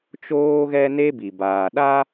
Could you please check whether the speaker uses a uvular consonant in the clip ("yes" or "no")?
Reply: no